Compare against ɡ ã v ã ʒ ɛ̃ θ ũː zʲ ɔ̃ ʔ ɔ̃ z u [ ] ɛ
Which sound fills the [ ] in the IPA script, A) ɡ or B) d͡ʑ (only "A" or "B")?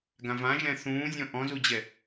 B